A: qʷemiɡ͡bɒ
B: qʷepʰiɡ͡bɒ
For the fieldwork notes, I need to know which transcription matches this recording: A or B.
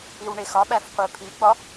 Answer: B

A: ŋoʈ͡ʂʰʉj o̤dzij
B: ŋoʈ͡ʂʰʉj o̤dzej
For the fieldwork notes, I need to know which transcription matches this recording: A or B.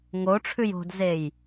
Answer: B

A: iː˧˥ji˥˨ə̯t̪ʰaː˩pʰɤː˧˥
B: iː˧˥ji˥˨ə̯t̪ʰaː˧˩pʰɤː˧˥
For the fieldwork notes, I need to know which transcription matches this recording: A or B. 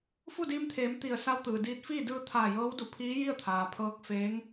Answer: A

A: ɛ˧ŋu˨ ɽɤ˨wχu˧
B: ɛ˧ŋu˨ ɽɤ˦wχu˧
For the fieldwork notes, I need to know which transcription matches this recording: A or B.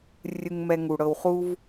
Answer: A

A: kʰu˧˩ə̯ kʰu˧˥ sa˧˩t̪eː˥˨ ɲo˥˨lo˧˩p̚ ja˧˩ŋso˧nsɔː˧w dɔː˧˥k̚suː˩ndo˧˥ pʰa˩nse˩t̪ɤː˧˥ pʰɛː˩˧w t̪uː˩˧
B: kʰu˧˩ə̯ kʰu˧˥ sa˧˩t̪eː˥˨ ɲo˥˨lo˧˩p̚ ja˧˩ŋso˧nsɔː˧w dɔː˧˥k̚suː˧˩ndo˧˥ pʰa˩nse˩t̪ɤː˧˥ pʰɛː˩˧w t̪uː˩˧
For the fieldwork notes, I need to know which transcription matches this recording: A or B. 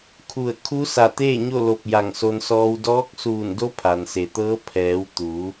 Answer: B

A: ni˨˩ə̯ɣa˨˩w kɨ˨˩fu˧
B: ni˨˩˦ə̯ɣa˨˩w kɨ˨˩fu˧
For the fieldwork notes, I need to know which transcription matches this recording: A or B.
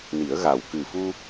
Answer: B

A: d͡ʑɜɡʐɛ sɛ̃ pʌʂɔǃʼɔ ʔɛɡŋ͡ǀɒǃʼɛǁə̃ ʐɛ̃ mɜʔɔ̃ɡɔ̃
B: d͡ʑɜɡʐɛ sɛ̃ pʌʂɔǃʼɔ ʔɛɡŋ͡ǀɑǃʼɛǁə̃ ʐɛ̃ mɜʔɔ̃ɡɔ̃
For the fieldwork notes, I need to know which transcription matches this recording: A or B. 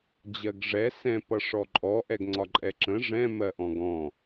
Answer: A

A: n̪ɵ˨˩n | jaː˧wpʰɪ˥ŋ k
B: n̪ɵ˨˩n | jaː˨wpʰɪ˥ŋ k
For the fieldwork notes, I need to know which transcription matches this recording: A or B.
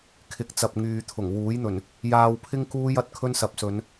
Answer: A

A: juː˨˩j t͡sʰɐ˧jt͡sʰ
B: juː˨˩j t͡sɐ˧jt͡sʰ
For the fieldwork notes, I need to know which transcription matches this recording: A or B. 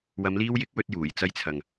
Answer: B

